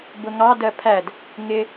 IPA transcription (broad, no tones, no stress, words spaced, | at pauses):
bʊŋɑ dɜpʰæd | ŋɪ